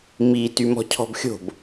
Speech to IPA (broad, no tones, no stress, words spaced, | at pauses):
mi tymɔ̤cʰɔ̤bxʲo̤b